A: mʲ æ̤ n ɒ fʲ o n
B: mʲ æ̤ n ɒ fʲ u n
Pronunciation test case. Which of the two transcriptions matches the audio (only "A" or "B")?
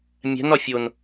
A